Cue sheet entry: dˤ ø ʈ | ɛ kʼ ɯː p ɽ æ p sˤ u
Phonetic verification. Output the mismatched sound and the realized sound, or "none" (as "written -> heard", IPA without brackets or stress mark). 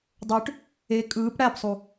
ɛ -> e